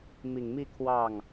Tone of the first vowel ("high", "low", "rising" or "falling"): low